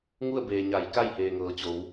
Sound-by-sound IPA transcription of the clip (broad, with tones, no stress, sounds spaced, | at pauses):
ŋ u˥˨ ə̯ b eː˩ ɲ a˩˧ j k a˥˨ j h eː˩ ŋ ɤː˩ t͡ɕ o˩˧ w